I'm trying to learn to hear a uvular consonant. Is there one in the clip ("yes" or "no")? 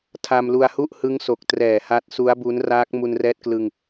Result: no